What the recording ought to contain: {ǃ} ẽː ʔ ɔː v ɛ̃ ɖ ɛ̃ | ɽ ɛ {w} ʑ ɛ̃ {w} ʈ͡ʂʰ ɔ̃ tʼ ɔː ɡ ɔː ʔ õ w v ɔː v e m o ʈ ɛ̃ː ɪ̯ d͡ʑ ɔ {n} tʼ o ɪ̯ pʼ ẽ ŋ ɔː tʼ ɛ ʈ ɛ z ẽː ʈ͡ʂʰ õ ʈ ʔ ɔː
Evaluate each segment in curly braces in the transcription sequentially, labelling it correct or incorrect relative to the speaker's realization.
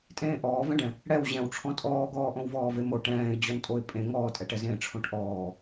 incorrect: tʼ, correct, correct, correct

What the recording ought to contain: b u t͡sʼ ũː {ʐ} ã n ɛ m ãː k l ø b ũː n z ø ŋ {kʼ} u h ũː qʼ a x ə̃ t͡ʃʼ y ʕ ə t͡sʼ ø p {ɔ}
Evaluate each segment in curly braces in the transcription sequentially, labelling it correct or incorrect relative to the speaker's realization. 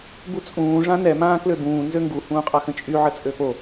correct, incorrect: ɡ, incorrect: o

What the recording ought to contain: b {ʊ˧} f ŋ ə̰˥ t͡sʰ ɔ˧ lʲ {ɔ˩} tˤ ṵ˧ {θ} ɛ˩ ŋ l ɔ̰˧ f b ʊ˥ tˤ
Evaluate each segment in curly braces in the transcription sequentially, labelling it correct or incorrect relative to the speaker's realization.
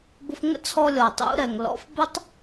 correct, correct, incorrect: ɾ

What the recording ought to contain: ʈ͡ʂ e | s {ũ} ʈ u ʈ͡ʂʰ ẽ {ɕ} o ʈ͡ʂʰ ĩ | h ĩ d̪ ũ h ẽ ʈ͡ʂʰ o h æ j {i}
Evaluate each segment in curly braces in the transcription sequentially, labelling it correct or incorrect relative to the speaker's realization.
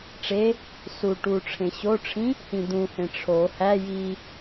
incorrect: u, correct, correct

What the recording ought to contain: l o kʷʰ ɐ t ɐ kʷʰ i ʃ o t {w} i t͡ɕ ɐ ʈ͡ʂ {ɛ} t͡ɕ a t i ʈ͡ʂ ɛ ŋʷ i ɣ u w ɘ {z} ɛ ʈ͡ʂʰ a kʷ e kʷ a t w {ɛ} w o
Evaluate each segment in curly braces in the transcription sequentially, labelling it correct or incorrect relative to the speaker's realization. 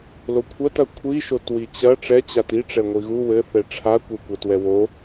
correct, correct, incorrect: θ, correct

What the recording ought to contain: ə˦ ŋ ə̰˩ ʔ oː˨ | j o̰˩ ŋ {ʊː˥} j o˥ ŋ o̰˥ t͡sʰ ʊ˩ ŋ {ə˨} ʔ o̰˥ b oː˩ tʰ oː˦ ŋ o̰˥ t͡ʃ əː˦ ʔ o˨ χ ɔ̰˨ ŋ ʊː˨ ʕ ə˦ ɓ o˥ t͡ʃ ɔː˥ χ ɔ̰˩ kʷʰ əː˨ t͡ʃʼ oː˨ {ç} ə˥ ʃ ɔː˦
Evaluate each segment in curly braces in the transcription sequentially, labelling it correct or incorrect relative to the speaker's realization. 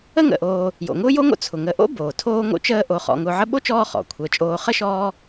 correct, correct, incorrect: χ

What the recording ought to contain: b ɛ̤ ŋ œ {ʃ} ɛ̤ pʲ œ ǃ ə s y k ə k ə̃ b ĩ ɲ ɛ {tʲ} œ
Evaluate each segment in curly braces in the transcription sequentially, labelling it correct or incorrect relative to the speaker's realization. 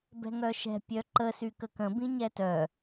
correct, incorrect: t

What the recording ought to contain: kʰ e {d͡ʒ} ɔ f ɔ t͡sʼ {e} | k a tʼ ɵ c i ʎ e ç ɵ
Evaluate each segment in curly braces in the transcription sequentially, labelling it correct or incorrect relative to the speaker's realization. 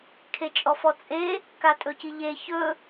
incorrect: t͡ʃʼ, correct

